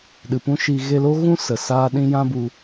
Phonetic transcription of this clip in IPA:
ɗ ɨ˨ p ũ˦ ʃ i˧ ɣ e˧ l o˦ ɣ ũ˦ s ə˨ s aː˦ ɗ ĩ˦ j ã˦ b u˧

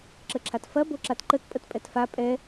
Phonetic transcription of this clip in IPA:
ǁ ə ǁʰ a t f ɐ b o ǁ a t ǃ ə t pʼ ə t pʼ ɛ t f a pʼ ɛ

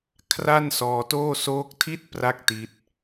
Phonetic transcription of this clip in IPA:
kʰ r a˥˩ n s ɔː˧ t oː˥˩ s oː˦˥ k̚ tʰ i˥˩ t̚ p r a˦˥ k̚ t i˦˥ t̚

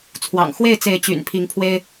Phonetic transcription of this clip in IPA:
t͡sʰ w ɑ̰˨˩ ŋ x w e˥˨ ɪ̯ t͡s e˨˦ ɪ̯ t͡ɕ y̰˨˩ n pʰ i˨˦ ŋ pʰ w e˦ ɪ̯

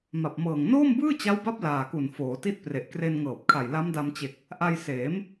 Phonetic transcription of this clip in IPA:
m a˨˩ p̚ m ɤː˨˩ ŋ n oː˥˩ m b ɯː˥˩ t͡ɕ a˦˥ w b a˦˥ p̚ l aː˨˩ k u˨˩ n f oː˩˦ t i˥˩ t̚ p r e˨˩ ʔ k r e˧ n ŋ ɤː˨˩ p̚ kʰ a˨˩ j l a˦˥ m d a˧ m t͡ɕ e˨˩ k̚ | ʔ a˧ j s eː˩˦ m

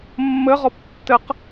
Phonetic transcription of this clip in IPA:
mː ɘ ʁ ɔ p tː ɘ q

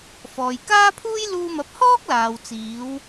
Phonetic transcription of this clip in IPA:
f ɔː˨ j k aː˥ pʰ uː˥ j l uː˧ m ɐ˨˥ p̚ h ɔː˥ k̚ l aː˨ w t͡s iː˨˧ w

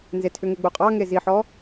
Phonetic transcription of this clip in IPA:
n z e tʰ ʏ ŋ e ɡ͡b u qʼ ɑ ŋ e z i ħ ɔ

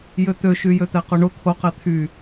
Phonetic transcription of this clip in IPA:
j ø t̪ ø ʃ y j ø t̪ ɛ q o ɳ o t̪ʰ o q ɛ t̪ʰ y

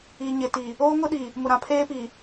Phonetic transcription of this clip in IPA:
i˨ ɲ ɪ˨ t i˨ | oː˦ ŋ ʊ˦ ɗ i˨ | m ʊ˨ ɾ ã˨ pʰ eː˦ p i˨

